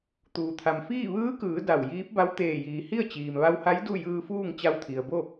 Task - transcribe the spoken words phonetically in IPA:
t̪uː˩t̪ʰa˩mfiː˥˨ ʋɯː˧˥kɯː˩˧ da˧˩wjiː˧˥p̚ ba˧˥wt̪eː˧˩jiː˩ hi˥˨ə̯t͡ɕiː˩mʋa˧wha˧˥j du˥˨jɯː˧fuː˥˨ŋ t͡ɕa˧wt̪ʰi˩ə̯bo˥˨

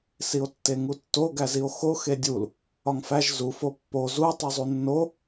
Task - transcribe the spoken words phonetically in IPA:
sio̯tːeŋutːo ɡæzio̯xo xedʲul | ɒŋfæʒ zu fopːo zu tˤuzˤunːo

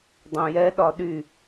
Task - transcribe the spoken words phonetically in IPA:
dˤõjɛɗɒ ɗy

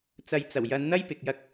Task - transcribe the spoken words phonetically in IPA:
t͡sɐ˨jt͡sɐ˨˩w jɐ˨˧nn̪ɐ˥j pɪ˨k̚jɐ˧k̚

